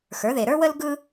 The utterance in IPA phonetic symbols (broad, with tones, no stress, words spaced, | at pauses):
xə˞˩˥ðe˨ɾə˞˥wə˥l ɡɯ˥